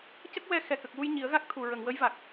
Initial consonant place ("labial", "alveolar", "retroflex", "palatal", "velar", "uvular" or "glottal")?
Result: palatal